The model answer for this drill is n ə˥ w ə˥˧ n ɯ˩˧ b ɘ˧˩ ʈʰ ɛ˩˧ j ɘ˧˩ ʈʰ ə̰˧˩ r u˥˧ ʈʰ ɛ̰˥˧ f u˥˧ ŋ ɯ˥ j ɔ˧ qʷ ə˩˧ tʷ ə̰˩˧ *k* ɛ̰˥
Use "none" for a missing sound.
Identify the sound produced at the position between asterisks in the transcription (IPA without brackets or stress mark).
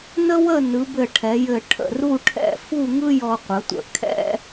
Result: kʰ